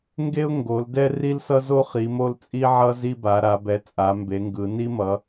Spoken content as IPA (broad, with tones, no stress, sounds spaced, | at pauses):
ŋ ɡ e˥ ʊ̯ ŋ ɡ o˨˦ l d ɛ˥ r i˥ l s ʌ˥ z o˥ χ i˨˦ m o˥ l t͡sʼ i˥ ʕ ʌ˥ z i˥ b a˨˦ ɾ a˨˦ b ɛ˨˦ t͡sʼ a˨˦ m b e˨˦ ŋ ɡ ɯ˨˦ n i˥ m ʌ˨˦